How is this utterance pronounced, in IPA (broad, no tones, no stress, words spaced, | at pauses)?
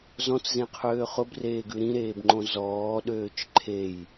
zɔ̃t͡szẽqʰøː χʊbreːɡʉ ɾĩɾeːbŋ͡ǃõ zɔːɗøːt͡ʃ ǃʰej